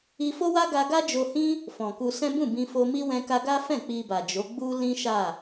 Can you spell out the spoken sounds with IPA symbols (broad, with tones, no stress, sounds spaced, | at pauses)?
i˧ f o˦ w a˦ ɡ a˧ ɡ a˦ d͡ʒ o˧ h ĩ˦ | f ɔ̃˨ k u˧ s ɛ̃˦ b ũ˦˨ b ĩ˧ f o˧ m i˧ w ɛ̃˧ k a˧ ɡ a˦ f ɛ̃˦˨ k͡p i˧ b a˨ d͡ʒ o˨˦ ɡ͡b u˦ l ĩ˦ ʃ a˦˨